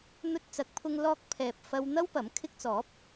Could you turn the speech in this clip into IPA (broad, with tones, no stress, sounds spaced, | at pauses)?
n̪ ɵ˧ t̚ t͡s ɐ˨˥ k̚ pʰ ʊ˧ ŋ l ɔː˧ k̚ pʰ ɛː˨ p̚ f ɐ˧ w n̪ ɐ˥ w p ɐ˨˥ m kʰ ɪ˧ k̚ t͡s ɔː˨˥ p̚